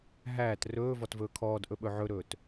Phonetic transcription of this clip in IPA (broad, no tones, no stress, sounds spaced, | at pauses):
ɦ æː t r ɵː v ɔ t v ɵː kʰ ɔː d ʔ ɵ ɓ ɵ ʕ ɵ ɾ ɵː t